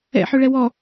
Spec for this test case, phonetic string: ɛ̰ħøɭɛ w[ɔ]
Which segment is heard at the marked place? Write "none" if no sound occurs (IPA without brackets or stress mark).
ɔ